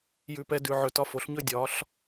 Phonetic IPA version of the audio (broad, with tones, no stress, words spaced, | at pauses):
jʉ˧pɛ˧ dʉ˨ ʕɵ˨tɒ˧fo˨˦ɬɲɵ˦ dʲɒ˨˦ɬ